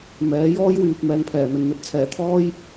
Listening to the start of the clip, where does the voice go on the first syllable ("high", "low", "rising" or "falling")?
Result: rising